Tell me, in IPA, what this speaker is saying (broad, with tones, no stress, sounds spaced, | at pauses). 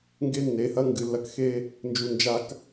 ŋ ɡ e˦ nː e˨˦ h ɐ˦ ŋ ɡ ɨ˨ lː ɐ˦ k x e˦ | n d͡ʒ u˨ n d͡ʒ a˨ k